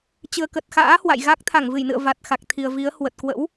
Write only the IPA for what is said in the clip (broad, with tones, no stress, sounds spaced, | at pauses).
t͡ɕ ɨ˨˩ ə̯ k ə˨˩ t̚ x a̰ː˧˥ h w a̰˧˨ j ɣ a˦˥ k̚ t̪ʰ a˧˩ ŋ v ɨ˧˩ j n ɨ̰˧˨ ə̯ v a˨˩ t̚ x a˨˩ k̚ t̪ʰ i˨˩ ə̯ v i˨˦ ə̯ h w ə˨˩ t̚ k w ə̰˧˥ w